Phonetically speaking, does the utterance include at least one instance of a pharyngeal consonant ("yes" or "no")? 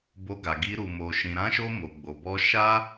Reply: no